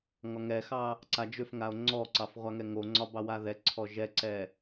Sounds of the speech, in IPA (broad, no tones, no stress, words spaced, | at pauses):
ŋɒŋɛxɑ | ǀad͡ʒʏfŋao̯ ŋ͡ǀɔǀɑf ʁʷaŋɛŋoŋ͡ǀɒ bɑwaðɛǀʰɔ ʒɛǀɛ